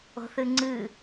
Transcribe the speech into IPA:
o̤θɨŋ͡ǀɨ

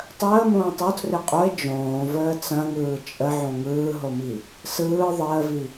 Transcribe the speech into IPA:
tˤəː mõːtˤotʰre qʼoe̯ d͡ʒõːvəː t͡sɐ̃ŋɯː t͡ʃʼə ʕõŋɯːɦomi | sɯː ðˤəːvi

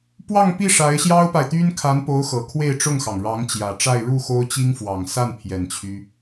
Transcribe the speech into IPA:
pwɑ˥˧ŋpi˥˩ ʂa˧˥ɪ̯ɕjɑ˥ʊ̯pa˨ɪ̯t̪y˥n kʰa˧˥npo˧˥ʊ̯ xɤ˨˩kʰwe˥˧ɪ̯ʈ͡ʂʊ˥˩ŋxɑ˩ŋ ɻɑ˧˥ŋt͡ɕjä˨˩ʈ͡ʂa˥˧ɪ̯ ɻu˥˩ xo˥ʊ̯t͡ɕi˥ŋ fwɑ˨˩ŋsa˥˩n pʰjɛ˨˩nt͡ɕʰy˦

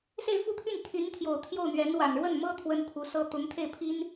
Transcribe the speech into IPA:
se˥˧ɪ̯fu˥˧t̪ʰy˥˩n t̪ʰy˧˥nt̪ʰjo˨˩ʊ̯ t̪ʰjo˥˩ʊ̯n̪ɥɛ˧˥n wa˨˩nɻwə˥˩nmɤ˥ t̪ʰwə˥npʰu˧˥sɤ˥ t̪ʊ˧˥ŋt̪ʰe˥˩ɪ̯ pʰi˥n

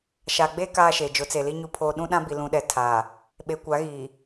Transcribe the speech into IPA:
ʃa˨ɡ͡be˦ kaː˦ʃe˨ d͡ʒʊ˨˦t͡se˨li˦ ɲu˦pʰoː˦ ɗũ˦ɗã˦ bi˨lũ˨ɗɛ˨ tʰaː˨ | ɓe˨kʷa˨˦ɣiː˨

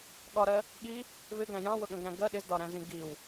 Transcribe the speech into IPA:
ɠɒɾɜ | ɠi | vɪɡæ̃ jɑ̃wʊɠə̃ɡɾæ̃ ɡɜ ɗɪzdɒɾæ̃zĩ ɡiw

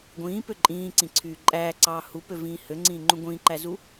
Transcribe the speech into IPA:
ɡʷĩːpø ǃʼĩːǀĩǀʰyː ǃʼæːǀɑː hupøvĩː høŋ͡ǀĩːŋ͡ǃũ ɡʷĩːǃæzu

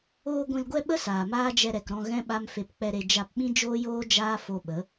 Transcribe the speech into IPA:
oː˧ ɡʷĩ˧lɡʷɛ˦ɓə˦ saː˨maː˦d͡ʒɛ˧ ɾɛ˨kɾɔ̃˧ ɣɛ̃˦ ɓa˦mfe˧p k͡pɛ˧ɾe˧ d͡ʒa˧pɓĩ˦ d͡ʒoː˦joː˦ d͡ʒaː˦ fo˧ɓə˨˦

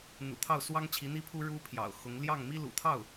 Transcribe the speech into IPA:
n̪ṵ˨˩t̪ʰɑ˥˩ʊ̯swɑ˥ŋ t͡ɕʰi˧˥n̪i˥pʰu˥ ɻu˥pʰjɑ̰˨˩ʊ̯xʊ˧˥ŋ ljɑ˥˩ŋmi˥lṵ˨˩t̪ʰɑ˥˩ʊ̯

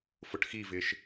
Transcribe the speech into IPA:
fʊʈxivɪːʃ

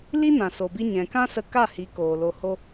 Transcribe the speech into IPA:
li˦nã˨so˨bi˧ ɲɛ̃˨ kã˦sə˧ka˦˨hi˨˦ koː˨lo˧ho˦

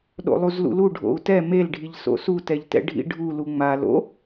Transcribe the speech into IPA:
ɗo̰lˠuzlṵlu ɖʱo̰u̯tɛ melɖʱiʎ so̰sutɛʎtɛ̰ ɖʱḭɖʱu luŋ͡ma lo̰

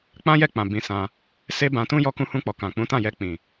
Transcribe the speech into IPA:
k͡pã˦jɛ˦˨k͡pã˨ bĩ˧sã˧ | se˦bã˧tũ˦ jɔ˧kũ˧hũ˧k͡pɔ˨ kã˨k͡pũ˨˦tã˦˨jɛ˧ k͡pĩ˨

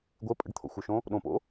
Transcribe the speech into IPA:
ɡʷe pʼə̰ɖt̪ʰo̰xʷœʃõ | ɗõpo̰

